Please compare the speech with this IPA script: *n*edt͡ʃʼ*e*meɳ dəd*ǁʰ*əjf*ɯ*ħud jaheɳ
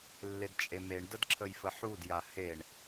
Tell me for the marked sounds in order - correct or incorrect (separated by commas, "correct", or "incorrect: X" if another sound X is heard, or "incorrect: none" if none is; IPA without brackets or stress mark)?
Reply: incorrect: lː, correct, correct, incorrect: ə